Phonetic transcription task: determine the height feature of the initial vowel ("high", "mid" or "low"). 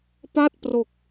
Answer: low